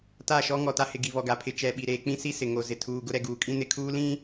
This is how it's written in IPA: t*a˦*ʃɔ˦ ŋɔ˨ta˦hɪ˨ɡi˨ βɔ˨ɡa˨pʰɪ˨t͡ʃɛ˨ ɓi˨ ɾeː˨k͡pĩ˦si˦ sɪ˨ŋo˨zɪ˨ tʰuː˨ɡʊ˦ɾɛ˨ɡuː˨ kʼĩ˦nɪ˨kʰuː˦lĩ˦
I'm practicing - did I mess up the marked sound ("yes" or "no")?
yes